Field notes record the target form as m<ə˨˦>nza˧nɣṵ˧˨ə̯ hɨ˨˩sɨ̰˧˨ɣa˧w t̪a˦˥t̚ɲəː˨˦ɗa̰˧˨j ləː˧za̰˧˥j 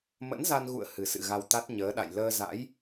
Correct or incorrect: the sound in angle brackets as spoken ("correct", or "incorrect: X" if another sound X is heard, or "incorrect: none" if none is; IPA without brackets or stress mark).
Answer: incorrect: ə̰˧˥